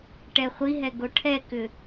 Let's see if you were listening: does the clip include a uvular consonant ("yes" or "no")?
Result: yes